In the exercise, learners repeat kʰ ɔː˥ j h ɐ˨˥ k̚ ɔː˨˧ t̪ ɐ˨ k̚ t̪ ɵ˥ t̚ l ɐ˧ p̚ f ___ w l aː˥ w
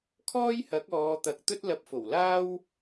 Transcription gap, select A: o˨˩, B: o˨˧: A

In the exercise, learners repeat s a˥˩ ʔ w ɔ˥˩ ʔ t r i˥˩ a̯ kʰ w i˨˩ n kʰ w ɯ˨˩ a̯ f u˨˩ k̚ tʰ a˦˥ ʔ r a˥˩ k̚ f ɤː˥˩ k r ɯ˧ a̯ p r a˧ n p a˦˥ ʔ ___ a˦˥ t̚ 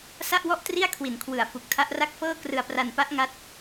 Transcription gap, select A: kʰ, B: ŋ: B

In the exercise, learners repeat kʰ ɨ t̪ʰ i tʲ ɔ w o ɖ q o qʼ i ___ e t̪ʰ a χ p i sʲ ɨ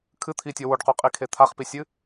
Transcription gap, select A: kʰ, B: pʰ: A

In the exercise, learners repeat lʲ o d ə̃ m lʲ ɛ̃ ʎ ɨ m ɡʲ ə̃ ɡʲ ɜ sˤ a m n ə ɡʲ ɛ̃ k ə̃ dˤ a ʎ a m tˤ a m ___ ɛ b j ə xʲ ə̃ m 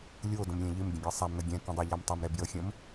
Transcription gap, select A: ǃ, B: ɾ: B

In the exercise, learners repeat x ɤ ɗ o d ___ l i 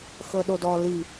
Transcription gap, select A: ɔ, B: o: A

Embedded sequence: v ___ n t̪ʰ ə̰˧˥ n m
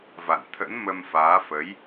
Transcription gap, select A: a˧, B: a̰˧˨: B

